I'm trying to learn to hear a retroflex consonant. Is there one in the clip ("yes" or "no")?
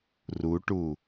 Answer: yes